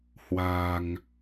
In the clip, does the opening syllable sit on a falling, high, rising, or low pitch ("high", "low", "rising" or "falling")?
low